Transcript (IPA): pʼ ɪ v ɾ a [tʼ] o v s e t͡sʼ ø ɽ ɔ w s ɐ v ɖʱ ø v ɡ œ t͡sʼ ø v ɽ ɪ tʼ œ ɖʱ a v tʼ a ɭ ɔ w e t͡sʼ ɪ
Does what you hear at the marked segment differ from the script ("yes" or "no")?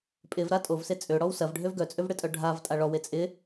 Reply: no